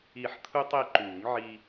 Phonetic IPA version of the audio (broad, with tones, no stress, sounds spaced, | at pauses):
i˨˩˦ ħ t̪ʰ u˧ tˤ e˧ ǃ uː˨˩˦ ŋ ʕ i˧